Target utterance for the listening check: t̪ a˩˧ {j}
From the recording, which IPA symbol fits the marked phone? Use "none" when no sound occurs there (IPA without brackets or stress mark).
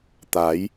j